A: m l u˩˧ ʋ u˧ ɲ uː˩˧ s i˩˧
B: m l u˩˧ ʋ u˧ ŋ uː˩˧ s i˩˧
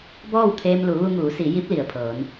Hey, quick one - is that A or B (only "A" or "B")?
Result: B